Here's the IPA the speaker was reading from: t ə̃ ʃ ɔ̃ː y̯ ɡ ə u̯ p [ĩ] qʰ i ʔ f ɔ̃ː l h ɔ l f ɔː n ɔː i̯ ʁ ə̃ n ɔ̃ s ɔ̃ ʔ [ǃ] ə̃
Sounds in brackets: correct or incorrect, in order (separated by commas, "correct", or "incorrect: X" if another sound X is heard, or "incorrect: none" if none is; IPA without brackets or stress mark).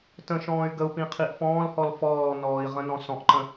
correct, correct